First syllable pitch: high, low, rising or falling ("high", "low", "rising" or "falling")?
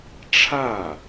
falling